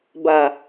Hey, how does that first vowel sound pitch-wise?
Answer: low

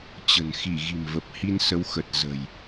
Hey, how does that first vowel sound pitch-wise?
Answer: low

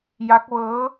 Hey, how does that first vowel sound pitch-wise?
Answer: rising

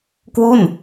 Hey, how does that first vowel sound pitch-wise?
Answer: falling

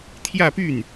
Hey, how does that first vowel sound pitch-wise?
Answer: falling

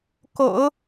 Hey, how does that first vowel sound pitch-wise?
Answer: low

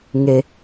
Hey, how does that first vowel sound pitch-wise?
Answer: low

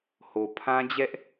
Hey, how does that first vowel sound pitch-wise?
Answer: low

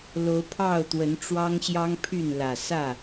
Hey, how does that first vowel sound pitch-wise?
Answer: rising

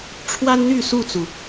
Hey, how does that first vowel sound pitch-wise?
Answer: high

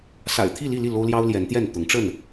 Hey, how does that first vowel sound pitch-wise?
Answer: low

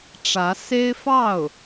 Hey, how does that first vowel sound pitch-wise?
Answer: rising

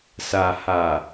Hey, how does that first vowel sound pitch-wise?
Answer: low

